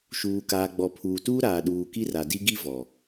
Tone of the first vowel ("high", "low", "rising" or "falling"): low